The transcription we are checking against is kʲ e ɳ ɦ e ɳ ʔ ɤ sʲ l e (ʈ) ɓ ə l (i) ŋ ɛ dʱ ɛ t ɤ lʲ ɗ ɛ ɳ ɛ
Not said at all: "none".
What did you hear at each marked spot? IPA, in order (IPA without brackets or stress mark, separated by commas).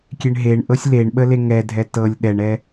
ɳ, e